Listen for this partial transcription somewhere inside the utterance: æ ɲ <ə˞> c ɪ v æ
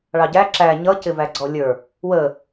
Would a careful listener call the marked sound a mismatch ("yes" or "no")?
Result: yes